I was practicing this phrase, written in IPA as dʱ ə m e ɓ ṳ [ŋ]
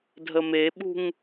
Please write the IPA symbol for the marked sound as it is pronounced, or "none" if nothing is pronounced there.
ŋ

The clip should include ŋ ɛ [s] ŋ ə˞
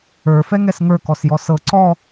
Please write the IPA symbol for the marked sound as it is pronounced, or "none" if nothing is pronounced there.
s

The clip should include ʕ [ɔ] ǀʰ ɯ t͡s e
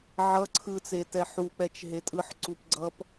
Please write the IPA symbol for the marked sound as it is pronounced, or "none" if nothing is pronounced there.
ʌ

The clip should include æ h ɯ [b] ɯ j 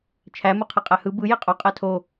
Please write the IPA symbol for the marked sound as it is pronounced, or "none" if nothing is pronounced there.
b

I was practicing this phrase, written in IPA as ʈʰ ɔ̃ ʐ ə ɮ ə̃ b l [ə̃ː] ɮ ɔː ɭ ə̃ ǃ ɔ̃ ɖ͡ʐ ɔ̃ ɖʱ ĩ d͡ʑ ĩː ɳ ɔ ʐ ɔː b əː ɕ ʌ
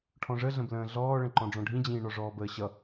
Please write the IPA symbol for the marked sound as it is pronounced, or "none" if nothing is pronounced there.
ə̃ː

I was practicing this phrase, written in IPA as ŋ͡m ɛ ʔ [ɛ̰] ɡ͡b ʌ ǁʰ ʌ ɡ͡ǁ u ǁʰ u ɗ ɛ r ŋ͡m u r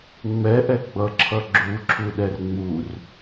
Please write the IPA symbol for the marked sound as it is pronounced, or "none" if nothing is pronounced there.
ɛ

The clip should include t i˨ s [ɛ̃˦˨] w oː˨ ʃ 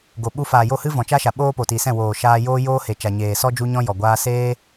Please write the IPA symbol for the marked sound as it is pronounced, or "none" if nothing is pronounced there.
ɛ̃˦˨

